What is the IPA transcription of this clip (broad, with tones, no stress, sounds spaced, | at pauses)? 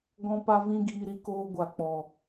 ɡ ɔ̃˦ p a˦ v ĩ˦ ɡ iː˧ ɾ i˧ k oː˧ ɡʷ a˨ k͡p ɔ˨